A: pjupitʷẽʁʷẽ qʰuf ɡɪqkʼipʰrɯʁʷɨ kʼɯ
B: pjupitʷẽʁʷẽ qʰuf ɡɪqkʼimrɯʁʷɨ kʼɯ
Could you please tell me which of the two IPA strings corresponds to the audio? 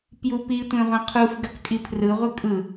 A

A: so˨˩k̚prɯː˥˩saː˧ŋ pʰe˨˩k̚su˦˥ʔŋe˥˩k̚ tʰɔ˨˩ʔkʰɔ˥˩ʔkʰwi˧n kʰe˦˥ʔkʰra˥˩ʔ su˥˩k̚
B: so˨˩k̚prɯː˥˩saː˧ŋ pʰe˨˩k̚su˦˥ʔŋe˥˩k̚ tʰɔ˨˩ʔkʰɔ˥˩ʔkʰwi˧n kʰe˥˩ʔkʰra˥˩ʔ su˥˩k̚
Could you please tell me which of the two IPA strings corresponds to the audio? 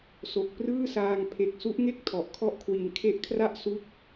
A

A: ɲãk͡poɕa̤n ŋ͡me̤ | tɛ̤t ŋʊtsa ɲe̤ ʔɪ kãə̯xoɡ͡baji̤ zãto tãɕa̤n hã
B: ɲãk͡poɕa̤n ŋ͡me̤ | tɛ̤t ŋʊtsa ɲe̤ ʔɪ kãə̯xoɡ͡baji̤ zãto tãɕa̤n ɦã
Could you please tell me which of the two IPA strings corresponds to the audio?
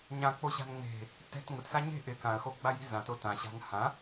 A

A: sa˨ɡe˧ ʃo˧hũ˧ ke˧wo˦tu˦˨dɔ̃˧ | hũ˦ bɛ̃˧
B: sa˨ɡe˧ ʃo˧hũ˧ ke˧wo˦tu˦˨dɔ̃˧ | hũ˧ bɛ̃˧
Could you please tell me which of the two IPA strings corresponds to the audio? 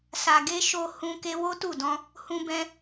B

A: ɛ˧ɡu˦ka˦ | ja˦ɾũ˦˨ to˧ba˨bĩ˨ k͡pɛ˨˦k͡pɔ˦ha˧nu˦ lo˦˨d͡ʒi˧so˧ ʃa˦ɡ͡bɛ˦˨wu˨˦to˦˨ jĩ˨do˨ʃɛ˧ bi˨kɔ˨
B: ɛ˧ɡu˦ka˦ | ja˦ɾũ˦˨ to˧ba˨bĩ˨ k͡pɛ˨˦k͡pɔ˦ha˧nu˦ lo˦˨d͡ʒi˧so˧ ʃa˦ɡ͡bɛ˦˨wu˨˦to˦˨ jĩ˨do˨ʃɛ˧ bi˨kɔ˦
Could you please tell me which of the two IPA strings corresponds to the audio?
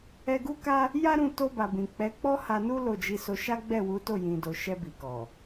A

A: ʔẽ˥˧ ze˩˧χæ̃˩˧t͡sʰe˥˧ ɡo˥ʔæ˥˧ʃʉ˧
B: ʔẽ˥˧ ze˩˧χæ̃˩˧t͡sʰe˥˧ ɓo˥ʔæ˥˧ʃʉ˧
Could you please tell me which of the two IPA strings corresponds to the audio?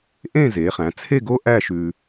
A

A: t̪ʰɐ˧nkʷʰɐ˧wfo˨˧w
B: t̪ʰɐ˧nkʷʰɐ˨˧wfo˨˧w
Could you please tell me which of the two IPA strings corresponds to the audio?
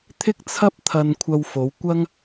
A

